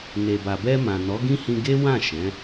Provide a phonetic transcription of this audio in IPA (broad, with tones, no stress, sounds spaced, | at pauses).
n e˨ b a˨ b ɛ˧ m ã˨ n ɔ˨˦ ɡ ĩ˦ h ĩ˧ ɡ e˦ w ã˦˨ ʃ ɛ̃˨˦